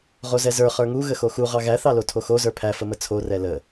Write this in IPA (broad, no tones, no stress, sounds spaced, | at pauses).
ʁ o z ɛ z ə˞ χ ə˞ ŋ u ɣ ə x o x u ʁ ɑ ɣ æ θ ɑ l o tʰ o x o z ə˞ pʰ æ f ə m ə t͡sʰ o r ɛ l ə